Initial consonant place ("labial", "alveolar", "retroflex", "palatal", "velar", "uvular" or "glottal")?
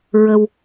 alveolar